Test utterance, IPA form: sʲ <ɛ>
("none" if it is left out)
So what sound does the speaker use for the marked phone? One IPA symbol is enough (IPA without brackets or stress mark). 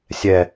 ɛ